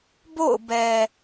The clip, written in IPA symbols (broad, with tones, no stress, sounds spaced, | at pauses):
b o̰˦˨ ʊ̯ b ɛ˨